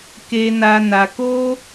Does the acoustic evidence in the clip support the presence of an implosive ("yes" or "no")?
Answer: no